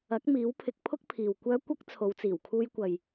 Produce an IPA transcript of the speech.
ɐ˨˥ k̚ m iː˨˥ w pʰ ɪ˨˥ k̚ pʰ ʊ˥ k̚ pʰ iː˨ w kʷ œː˥ kʷ ɐ˥ k̚ t͡sʰ o˨˧ w t͡s iː˨˩ w kʰ uː˧ j kʷ ɐ˨ j

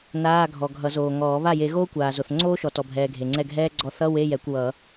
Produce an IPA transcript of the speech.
n aː˧˥˧ ɡʱ ɔ˨ ɡʱ ʌ˨˩˦ z oː˨ ŋ ɔː˨˩˦ β a˥˩ j e˨˩˦ ɣ oː˥ kʷ aː˨ z o˨ θ ŋ͡ǀ oː˥ ʃ ɔ˨ t ɔ˨ bʱ ɛː˨ ɡʱ e˨ ŋ͡ǀ ɛ˥˩ ɡʱ ɛː˥ ɡ͡ǀ ɔ˥˩ θ ʌ˧˥˧ w e˧˥˧ j ɛ˨˩˦ kʷ w ʌ˨˩˦

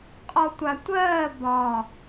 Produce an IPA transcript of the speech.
qʼ ɔ tʷ a tʷ ɜː b ɒ

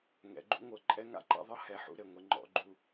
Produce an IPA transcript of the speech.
ŋ ɛ̰˨˦ ɡ͡ǃ ṵ˦ ŋʷ ɤ˨ ǃʼ ɛ˦ ŋ a̰˦ ǃ a̰˦ ðˤ ɤ˦ h ɛ˨˦ ħ ṵ˦ ɾ ɘ˨ ŋʷ ɪ˦ ŋ͡ǃ ɔ̰˨˦ ɡ͡ǃ u˦

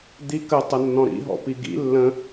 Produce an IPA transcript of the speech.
d̪ i k ə tˤ ə nː ɔ̃ ɾ ḭ ɦ ɔ̰ p i ɡ ḭ lː ə̃

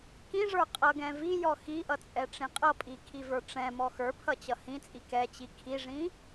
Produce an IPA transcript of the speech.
k ĩ ʐ ə˞ qʼ ʌ ɡ ɛ̃ v i j ɔ x i ʔ ʌ t͡sʼ ɛ ʈ͡ʂ ĩ qʼ ʌ pʼ i kʰ i v ə˞ ʈ͡ʂ ɛ̃ m ɔ x ə˞ pʰ ʌ t͡ɕ ʌ h ĩ t͡sʼ i k ɛ t͡ɕ i kʰ i ʐ ĩ

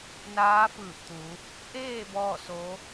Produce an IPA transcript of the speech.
n aː˧˥ f ɯː˧˩ p̚ t̪ u˩˧ | ʔ eː˥˨ b ɔː˥˨ s o˧˥

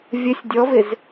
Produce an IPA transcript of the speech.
vʲ ə sʲ dʲ ɔ v ɪ z

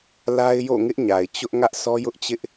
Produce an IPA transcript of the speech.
l a˦ ɪ̯ j o̰˦˨ ŋ ɪ˦ ʔ ɲ a˨ ɪ̯ t͡ɕ ʊ˦ ʔ ŋ ä˦ ʔ sʰ ɔ˦ j ʊ˦ ʔ t͡ɕ ɪ˦ ʔ

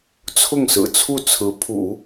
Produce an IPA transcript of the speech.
t͡sʰ ʊ˥˩ ŋ s ɹ̩˨˩ t͡sʰ u˥˩ t͡sʰ ɹ̩˧˥ pʰ ṵ˨˩˦

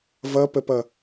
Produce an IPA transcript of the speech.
v ʌ p ə p ʌ

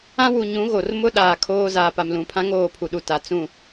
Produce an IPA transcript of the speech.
ã˦ w u˨ ɲ ũ˨˦ ɣ o˨ r m ʊ˦ ɗ aː˨ kʰ oː˦ z aː˨ p a˨ m l ũ˨ pʰ ã˦ ŋ oː˦˨ pʰ u˨ ɗ u˨ t a˨ t͡s ũ˦˨

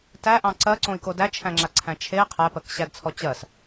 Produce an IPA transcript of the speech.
t æ ʔ ɑ̃ ǀ ɜ ǀ õ i̯ k o d æ t͡ʃʰ æ̃ ŋ͡ǁ a ǀʰ æ̃ t͡ʃʰ e qʰ æ p ɜ k ɕ æ d t͡sʰ ɔ t͡ɕ ɜ s

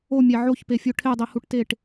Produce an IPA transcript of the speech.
o mʲ æ ʕ o ç p e fʲ o ʈʰ e dˤ i h u ʈ t e ʈ

